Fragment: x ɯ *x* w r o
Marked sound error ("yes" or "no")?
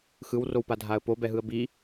yes